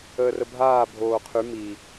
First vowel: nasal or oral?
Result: oral